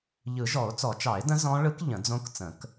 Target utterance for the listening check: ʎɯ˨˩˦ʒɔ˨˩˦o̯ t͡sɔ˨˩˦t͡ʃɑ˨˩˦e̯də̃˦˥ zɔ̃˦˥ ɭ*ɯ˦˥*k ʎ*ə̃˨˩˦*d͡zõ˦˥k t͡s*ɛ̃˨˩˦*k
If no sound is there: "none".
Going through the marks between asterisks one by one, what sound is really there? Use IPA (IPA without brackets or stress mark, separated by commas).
ɯ˦˥, ə̃˨˩˦, ə̃˨˩˦